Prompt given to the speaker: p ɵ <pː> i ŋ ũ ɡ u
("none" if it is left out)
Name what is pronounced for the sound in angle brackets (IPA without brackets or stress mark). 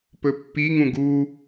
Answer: pː